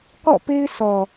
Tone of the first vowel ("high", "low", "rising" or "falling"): falling